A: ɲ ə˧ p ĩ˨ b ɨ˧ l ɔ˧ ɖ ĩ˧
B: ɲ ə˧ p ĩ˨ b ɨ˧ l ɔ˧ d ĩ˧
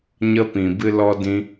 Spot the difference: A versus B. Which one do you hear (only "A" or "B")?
B